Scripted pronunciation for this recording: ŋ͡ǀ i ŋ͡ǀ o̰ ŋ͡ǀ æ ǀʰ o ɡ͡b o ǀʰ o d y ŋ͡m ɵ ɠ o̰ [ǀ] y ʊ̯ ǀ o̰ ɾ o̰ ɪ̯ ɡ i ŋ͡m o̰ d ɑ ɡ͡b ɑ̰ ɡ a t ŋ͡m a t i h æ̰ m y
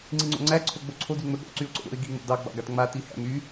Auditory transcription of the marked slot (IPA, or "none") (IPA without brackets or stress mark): ǀ